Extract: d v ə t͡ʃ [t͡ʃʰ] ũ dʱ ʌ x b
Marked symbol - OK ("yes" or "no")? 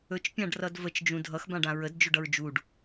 no